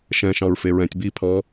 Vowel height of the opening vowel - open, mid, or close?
mid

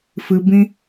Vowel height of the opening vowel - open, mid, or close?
close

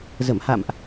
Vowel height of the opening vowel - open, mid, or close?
mid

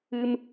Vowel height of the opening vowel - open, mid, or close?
close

